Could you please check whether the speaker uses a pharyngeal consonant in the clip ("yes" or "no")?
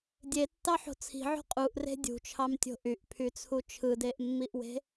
yes